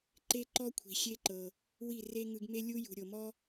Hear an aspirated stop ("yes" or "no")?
yes